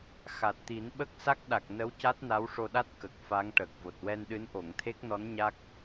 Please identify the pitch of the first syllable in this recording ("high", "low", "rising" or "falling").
low